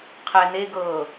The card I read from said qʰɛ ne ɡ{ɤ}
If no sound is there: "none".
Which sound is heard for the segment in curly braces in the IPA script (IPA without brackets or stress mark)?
ɤ